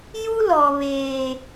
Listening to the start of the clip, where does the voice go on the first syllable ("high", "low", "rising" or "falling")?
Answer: high